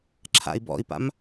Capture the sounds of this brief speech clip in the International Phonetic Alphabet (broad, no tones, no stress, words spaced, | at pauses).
ǁʰa̰i̯bɔ̰i̯pa̰m